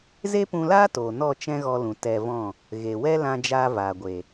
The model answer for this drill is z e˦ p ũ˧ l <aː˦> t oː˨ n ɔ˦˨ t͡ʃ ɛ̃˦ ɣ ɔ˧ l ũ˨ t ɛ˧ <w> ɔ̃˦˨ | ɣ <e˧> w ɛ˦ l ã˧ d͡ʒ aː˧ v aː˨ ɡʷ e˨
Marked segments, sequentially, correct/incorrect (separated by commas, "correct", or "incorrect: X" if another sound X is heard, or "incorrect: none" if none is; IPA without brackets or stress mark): correct, incorrect: v, incorrect: e˨